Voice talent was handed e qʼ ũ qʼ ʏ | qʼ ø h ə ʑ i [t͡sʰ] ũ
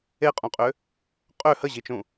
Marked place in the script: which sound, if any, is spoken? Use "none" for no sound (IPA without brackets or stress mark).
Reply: t͡ʃ